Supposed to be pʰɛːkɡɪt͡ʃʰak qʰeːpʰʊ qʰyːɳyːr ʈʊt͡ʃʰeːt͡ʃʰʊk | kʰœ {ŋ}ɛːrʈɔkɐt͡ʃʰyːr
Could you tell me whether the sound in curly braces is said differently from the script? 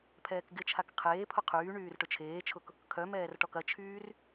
yes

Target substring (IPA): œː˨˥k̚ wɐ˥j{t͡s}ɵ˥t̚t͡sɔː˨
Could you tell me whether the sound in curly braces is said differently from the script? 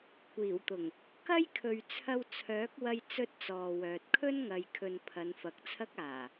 no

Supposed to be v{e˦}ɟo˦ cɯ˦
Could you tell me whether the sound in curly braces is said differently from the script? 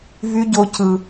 yes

